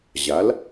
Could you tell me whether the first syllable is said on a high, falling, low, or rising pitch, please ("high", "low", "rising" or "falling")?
rising